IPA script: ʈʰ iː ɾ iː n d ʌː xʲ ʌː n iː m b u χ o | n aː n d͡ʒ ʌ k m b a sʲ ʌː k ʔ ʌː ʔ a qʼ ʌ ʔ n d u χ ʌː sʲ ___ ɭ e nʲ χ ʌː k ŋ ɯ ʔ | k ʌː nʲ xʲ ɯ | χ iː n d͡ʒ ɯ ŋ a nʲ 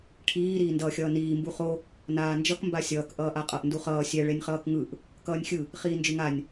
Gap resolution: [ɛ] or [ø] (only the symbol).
ɛ